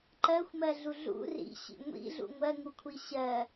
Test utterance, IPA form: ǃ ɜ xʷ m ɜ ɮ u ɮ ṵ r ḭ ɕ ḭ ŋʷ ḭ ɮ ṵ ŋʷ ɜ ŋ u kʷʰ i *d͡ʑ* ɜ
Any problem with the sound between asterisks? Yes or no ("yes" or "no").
yes